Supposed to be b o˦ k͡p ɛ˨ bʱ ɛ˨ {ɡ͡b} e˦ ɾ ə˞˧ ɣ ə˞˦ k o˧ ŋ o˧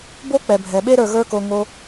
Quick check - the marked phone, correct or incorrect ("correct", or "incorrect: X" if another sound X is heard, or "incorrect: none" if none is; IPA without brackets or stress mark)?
incorrect: ɓ